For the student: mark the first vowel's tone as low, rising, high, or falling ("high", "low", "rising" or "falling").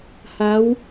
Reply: rising